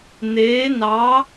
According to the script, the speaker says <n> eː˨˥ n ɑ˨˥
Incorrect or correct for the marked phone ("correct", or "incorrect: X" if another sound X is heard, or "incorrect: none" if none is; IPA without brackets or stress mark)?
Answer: correct